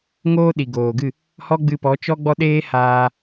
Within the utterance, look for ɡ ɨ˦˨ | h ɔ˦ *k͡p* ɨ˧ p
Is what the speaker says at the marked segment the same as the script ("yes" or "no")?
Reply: no